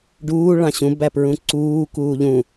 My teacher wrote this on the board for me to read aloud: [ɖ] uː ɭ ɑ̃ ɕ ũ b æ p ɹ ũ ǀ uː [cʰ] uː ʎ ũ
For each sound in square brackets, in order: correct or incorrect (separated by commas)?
correct, incorrect